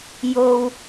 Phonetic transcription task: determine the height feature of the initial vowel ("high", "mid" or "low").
mid